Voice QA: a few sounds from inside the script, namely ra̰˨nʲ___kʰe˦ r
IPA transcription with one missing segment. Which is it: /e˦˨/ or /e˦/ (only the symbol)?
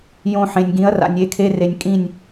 e˦˨